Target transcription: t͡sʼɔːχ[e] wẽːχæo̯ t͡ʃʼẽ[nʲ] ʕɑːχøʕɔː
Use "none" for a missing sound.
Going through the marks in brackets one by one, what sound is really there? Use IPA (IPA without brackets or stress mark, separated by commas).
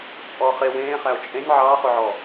e, nʲ